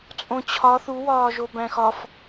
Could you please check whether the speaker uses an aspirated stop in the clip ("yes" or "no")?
yes